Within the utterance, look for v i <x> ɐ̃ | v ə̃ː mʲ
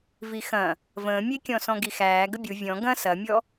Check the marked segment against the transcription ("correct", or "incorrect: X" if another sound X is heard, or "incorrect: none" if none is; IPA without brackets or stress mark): correct